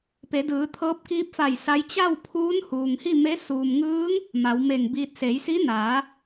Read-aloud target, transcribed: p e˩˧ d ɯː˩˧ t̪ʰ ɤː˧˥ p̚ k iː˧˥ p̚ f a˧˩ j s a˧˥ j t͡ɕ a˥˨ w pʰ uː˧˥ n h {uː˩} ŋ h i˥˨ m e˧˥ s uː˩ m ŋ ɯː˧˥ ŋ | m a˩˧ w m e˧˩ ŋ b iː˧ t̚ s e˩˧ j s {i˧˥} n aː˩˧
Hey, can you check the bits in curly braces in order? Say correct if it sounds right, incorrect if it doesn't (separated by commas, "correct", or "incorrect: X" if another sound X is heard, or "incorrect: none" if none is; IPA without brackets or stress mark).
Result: correct, correct